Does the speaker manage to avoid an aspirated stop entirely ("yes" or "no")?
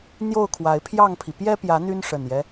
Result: no